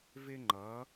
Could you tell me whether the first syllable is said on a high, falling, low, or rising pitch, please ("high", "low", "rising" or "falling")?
high